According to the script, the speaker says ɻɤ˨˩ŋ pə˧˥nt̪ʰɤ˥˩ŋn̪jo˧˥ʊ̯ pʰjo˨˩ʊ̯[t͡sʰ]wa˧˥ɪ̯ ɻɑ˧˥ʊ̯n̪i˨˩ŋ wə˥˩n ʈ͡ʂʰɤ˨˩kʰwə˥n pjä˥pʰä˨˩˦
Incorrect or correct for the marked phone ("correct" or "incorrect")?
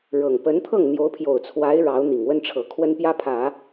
correct